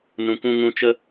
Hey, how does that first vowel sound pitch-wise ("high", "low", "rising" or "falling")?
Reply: low